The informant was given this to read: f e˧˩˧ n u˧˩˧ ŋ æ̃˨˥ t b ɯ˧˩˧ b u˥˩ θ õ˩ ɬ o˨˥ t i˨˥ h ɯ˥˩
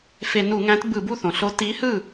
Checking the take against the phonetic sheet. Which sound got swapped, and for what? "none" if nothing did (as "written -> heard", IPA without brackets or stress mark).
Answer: none